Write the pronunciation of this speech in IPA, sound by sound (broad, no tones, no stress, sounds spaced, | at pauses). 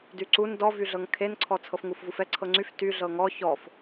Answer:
d y ǀ u n d ɔ v y ɮ ɤ ŋ kʰ e n ǀʰ ɔ t͡sʰ ɤ f ŋ u f v u f ɛ ǀʰ ɤ ŋ͡ǀ y f t y ɮ ɤ ŋ ɔ ç ɔ f